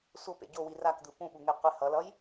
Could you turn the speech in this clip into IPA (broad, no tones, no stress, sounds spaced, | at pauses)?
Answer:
sʷ ʌ p ḛ ɟ o w i r a k d̪ ɯ p ũ ɓ u ŋ e qʷ e h ʌ l ʌ j